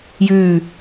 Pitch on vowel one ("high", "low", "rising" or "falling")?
falling